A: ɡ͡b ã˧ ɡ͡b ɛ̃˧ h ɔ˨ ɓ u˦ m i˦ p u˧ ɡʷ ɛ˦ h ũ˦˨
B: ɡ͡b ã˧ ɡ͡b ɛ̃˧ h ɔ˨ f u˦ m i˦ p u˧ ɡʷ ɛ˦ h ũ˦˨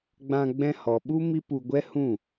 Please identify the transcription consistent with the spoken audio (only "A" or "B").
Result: A